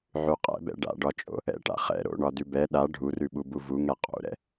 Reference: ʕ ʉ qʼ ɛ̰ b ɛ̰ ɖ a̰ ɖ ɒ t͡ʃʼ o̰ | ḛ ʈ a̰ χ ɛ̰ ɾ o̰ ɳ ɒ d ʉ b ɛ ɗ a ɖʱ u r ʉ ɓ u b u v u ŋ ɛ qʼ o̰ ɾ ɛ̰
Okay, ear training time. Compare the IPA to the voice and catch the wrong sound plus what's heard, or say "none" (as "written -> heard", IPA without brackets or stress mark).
ḛ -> ɛ̰